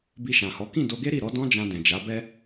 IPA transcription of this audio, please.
b i˧ ʃ ã˨ h ɔ˨˦ k ĩ˦˨ d o˧ ɡ e˦ ɾ i˦˨ ɾ ɔ˨˦ d ɔ̃˦ d͡ʒ ã˧ d ɛ̃˨ d͡ʒ a˨˦ b ɛ˦

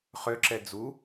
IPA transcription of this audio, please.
χ ø ǁ ɛ d͡z u

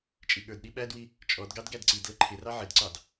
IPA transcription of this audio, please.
t͡ʃʼ i ɠ ə˞ d ɗ i ɓ æ d w i | t͡ʃʼ ɔ d ɡ ɑ d ɡ æ d ǀ i d l ə ǃʰ ɪ r ɑ ʕ ɪ d ǀ ɑ d

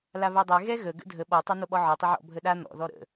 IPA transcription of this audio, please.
l a β ɛ dˤ ɛ ɣ ɛ ɣ ə ɡ ə̰ dʱ ə ɓ ɔ tˤ a n̪ o ɓ ɔ ʕ ɔ tˤ ə ʕ ɔ̰ bʱ ə ɗ a n̪ ɔ̰ ð ɔ ɾ ə̰

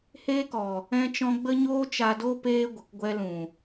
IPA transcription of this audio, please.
h eː˦ k ɔ˨ | ɛ̃˦ t͡ʃ ɔ̃˦ ɡ͡b ə˦ ɲ oː˦ t͡ʃ a˧ d o˦ p eː˦ ɡʷ ə˨ k ɡʷ ɛ˧ l ũ˨

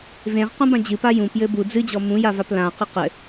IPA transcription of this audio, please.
v ẽ ʁ q ũ b ã d͡ʑ ɨ p a j ũ p j ɘ b u d͡z ɨ d͡ʑ ɔ m ũ j a v a p l ã q ɘ q ɘ

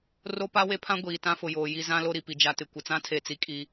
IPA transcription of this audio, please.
r o˦ p a˦ w e˦ pʰ ã˦ ɡʷ iː˨ t ã˦ f ʊ˨ j oː˨ j i˦ z ã˦ l o˦ ɾ i˨ p i˨ d͡ʒ a˨ t ɪ˨ kʷ ɪ˨ t͡s ã˦ tʰ e˨ t͡s i˨ kʼ i˦

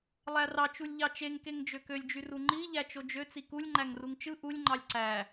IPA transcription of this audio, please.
lˠ æ r ɑ t͡ʃ u lʲ ʎ ɑ t͡ʃ e ŋ k e ŋ d͡ʒ ø k ø lʲ d͡ʒ y r u ŋ͡ǃ i ʎ æ t͡ʃ o d͡ʒ ø t͡s i k u lʲ ŋ͡ǃ æ ŋ r u ŋ t͡ʃ ɯ ʔ u lʲ ŋ͡ǃ ɑ lʲ ǀ æ

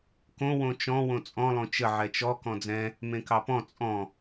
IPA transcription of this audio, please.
k õ w õ t͡ʃ ɔ̃ w õ t͡sʼ ɔ̃ lˠ õ t͡ʃ ə ʕ ɛ t͡ʃ ɔ k ɔ̃ d͡z ɛ̃ | m ẽ k ɑ p ɔ̃ t͡sʼ ɔ̃

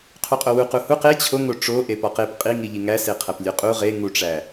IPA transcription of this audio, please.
qʰ u qʼ o w u q u h u q e t͡ɕʰ o ŋ o ʈ͡ʂ o ʔ e p ɒ q e p qʼ i ŋ i ʎ i ŋ æ s e qʰ æ p lʲ o qʼ u ʁ e ŋ u ʈ͡ʂ æ

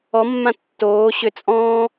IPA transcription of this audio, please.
ɔ mː ã tː oː ɕ ʏ t͡sʼ ɔ̃ː

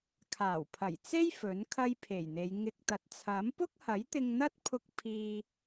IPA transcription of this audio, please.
kʰ aː˨˩ w pʰ ɐ˨˩ j t͡s e˥ j f ɵ˨˥ n kʰ ɐ˥ j pʰ e˨˩ j n̪ e˨˧ j ŋ ɪ˧ k̚ t̪ ɐ˨˥ t̚ t͡sʰ ɐ˨˥ m p ʊ˥ k̚ h ɐ˨˥ j t̪ ɪ˧ ŋ n̪ ɐ˥ t̚ pʰ ʊ˧ k̚ pʰ iː˧

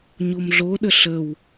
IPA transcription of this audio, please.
ɲ o m ɮ o ɗ ə ɬ ə w

